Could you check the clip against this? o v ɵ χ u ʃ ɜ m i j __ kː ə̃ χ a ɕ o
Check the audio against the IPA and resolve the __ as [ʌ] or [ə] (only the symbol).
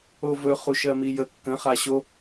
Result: ə